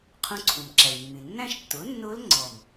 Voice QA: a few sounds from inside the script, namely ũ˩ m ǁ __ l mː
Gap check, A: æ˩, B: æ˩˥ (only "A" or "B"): A